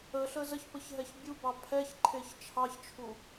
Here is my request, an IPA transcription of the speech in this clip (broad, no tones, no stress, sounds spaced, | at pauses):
ə ɬ əː z ə ç p ə ç ɦ ɛ ç bʲ u b ɑ pʰ ɛ ç ǃʰ e ç t͡ʃʰ ɑ ç t͡ʃʰ u